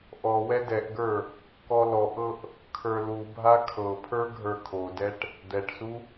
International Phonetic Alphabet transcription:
ʔ ɔ w ɛ d ɛ ʔ ɡ ə˞ | k ɔ l ɔ ʔ ɤ ʔ | kʰ ə˞ l u bʱ a kʰ ɤ pʰ ə˞ ɡʱ ə˞ kʰ o d ɛ ʈ | d̪ ɛ ʈ s u

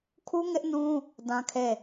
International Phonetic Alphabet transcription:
kʰ u˦ ŋ ɪ˦ ʔ n ũ˦ | d ã˦ kʰ e˦˨

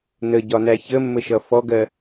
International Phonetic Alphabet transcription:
n ə ɟ ɒ n æ ç ə mː ə ʃ ʌ f ɔ ɡ ɜ

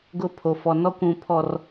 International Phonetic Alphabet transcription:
ɡ ʊ˦ pʰ o˨ f ɔ˨ n ɔ˦ kʷ ũ˨ pʰ ɔ˨ r

